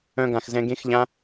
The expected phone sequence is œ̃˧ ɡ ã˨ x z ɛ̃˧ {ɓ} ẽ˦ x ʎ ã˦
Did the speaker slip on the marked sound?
yes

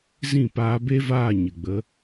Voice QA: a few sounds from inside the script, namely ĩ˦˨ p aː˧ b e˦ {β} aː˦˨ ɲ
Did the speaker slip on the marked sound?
yes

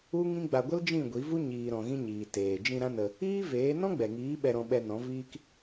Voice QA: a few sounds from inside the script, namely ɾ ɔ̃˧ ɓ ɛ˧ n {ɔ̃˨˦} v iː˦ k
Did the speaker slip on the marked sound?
no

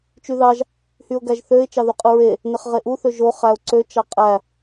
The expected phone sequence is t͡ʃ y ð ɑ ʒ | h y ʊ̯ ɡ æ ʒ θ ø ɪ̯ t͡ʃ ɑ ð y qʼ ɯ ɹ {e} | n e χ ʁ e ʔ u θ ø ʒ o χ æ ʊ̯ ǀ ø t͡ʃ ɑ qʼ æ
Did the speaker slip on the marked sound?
no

